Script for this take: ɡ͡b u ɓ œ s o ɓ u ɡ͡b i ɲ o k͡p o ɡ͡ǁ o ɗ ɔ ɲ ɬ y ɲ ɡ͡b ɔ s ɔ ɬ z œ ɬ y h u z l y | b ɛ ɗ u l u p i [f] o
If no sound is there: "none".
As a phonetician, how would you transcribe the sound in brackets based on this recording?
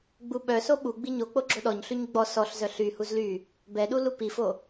f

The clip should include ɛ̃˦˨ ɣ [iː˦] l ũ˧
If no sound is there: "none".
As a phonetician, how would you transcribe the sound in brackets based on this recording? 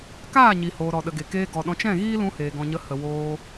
iː˦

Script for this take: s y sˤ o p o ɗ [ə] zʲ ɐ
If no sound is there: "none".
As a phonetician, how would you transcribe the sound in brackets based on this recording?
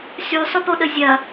ə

